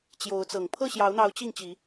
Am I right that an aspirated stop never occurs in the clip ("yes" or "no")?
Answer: no